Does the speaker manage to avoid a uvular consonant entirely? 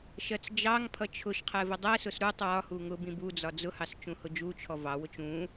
no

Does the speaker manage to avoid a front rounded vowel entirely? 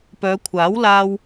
no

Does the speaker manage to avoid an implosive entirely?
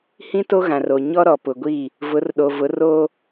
no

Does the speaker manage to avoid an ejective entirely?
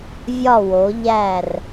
yes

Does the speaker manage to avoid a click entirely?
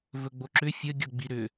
no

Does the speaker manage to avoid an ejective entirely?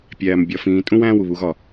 no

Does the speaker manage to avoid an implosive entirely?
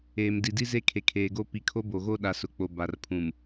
no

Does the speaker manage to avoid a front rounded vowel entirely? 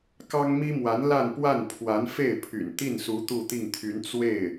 no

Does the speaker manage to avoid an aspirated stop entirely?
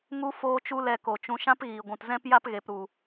yes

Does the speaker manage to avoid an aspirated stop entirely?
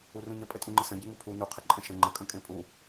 no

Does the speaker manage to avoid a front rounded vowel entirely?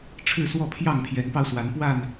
yes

